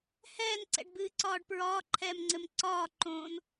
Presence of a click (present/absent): present